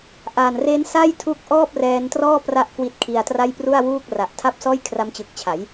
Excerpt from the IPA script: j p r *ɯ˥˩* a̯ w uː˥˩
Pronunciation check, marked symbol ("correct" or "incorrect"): incorrect